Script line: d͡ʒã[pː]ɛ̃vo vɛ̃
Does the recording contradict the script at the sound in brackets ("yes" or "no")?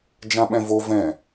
yes